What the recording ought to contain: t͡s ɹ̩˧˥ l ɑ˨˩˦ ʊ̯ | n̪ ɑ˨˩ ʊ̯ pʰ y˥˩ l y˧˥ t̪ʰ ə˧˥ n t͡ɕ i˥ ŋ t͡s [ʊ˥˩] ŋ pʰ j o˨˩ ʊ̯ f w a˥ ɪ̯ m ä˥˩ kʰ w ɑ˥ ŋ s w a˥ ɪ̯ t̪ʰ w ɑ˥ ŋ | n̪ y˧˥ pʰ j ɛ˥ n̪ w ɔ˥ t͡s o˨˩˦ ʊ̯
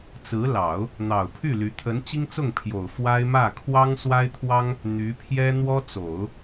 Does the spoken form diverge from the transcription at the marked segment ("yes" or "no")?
no